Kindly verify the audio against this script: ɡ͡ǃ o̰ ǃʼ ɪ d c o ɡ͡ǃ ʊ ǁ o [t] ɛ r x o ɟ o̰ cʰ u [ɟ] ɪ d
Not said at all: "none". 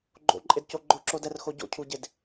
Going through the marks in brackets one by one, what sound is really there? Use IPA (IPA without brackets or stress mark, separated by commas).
d, ɟ